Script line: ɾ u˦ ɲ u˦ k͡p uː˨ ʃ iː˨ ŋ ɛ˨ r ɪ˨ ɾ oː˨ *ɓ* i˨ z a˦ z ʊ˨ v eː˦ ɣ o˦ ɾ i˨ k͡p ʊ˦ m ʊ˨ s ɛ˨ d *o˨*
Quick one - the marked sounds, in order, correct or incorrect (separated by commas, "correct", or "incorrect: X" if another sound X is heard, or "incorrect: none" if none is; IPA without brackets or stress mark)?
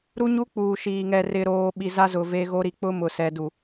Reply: correct, incorrect: u˨